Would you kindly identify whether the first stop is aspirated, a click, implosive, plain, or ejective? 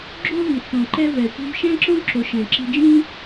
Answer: click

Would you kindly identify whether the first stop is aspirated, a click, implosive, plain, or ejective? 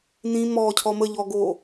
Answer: aspirated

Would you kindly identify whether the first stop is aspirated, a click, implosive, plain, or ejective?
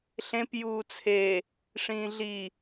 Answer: plain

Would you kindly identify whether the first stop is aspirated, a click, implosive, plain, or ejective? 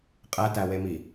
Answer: ejective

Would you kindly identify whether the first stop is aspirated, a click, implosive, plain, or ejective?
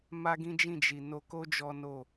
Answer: plain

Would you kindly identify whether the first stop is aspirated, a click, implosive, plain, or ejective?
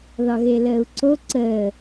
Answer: click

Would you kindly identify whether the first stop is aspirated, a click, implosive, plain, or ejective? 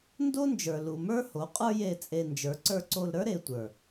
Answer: plain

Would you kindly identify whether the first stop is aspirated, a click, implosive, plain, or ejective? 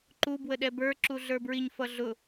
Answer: click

